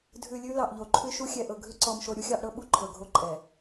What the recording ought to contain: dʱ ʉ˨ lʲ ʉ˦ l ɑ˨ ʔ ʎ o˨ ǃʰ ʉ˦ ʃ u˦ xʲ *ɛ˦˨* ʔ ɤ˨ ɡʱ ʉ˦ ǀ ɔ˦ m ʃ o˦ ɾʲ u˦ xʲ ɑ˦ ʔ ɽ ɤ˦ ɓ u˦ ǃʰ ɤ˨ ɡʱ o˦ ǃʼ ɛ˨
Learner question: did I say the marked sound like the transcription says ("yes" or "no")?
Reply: no